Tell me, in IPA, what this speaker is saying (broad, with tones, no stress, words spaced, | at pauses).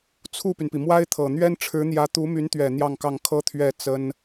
t͡sʰu˥˩py˩npi˩ mwa˥ɪ̯t̪ʰɤ˨˩ n̪ɥɛ˥nʈ͡ʂʰɻ̩˧˥n̪jä˧˥t̪u˧˥ my˧˥nt̪ɥɛ˨˩ n̪jɑ˥˧ŋkɑ˥˩ŋ kʰɤ˥ t̪ʰɥɛ˥˩ t͡sə˥n